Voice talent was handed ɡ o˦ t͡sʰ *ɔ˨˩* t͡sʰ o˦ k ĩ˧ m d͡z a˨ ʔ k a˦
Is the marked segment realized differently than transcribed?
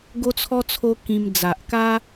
yes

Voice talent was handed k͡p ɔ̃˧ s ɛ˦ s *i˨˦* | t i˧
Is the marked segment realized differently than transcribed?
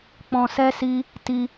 yes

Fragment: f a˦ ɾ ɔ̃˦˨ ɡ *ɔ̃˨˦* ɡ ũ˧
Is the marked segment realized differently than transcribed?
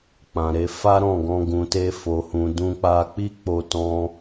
yes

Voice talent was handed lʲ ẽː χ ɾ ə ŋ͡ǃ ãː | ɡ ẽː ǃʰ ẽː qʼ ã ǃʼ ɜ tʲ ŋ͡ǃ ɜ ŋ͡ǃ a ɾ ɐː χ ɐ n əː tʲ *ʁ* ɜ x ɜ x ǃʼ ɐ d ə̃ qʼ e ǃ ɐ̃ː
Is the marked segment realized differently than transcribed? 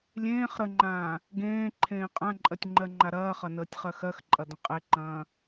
yes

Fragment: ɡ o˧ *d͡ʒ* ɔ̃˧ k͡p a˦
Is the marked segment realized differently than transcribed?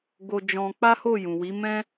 no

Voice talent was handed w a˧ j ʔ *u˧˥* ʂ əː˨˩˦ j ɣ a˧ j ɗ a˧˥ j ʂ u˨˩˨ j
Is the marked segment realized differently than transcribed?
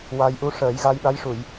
no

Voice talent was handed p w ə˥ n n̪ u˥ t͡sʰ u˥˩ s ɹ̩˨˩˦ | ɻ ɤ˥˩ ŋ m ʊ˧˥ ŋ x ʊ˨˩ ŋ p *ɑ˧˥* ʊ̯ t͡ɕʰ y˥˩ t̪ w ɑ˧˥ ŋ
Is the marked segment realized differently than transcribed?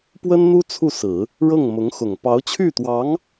no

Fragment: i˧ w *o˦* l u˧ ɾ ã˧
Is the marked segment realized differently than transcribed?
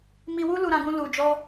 yes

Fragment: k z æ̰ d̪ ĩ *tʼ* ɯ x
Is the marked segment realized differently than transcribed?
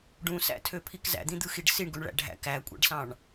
yes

